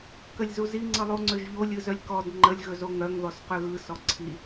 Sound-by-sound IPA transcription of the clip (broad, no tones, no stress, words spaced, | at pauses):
kəlʲzuzi ŋ͡ǀɯlˠuŋ͡ǀøʒʎo lʲɯzœlʲkɔd ŋ͡ǃəlʲ ɣɵzoŋœŋ ðɔsqøɣɯ sɔǀʰi